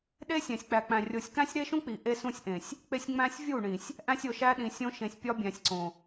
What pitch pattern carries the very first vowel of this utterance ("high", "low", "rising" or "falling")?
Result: high